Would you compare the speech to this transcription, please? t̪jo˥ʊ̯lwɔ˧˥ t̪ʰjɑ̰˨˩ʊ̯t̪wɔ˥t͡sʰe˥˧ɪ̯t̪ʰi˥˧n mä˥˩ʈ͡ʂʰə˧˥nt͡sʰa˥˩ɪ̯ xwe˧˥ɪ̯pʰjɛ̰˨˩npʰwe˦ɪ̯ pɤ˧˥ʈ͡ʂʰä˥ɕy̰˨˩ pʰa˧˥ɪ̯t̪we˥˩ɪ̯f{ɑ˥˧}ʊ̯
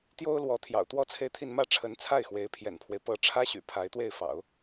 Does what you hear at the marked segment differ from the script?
yes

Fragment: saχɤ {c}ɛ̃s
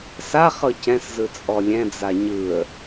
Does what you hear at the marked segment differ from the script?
no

